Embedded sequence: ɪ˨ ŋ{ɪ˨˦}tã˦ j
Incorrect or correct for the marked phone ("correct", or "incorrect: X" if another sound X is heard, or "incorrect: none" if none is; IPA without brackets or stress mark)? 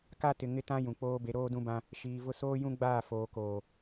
incorrect: ɪ˦